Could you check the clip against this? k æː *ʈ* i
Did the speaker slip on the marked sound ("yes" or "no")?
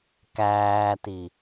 yes